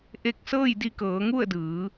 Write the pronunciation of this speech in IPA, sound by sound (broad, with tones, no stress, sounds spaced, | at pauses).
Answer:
ʔ e˧ k̚ s ɤː˥˨ j d i˧ k ɤː˩˧ ŋ u˥˨ ə̯ d ɯː˩˧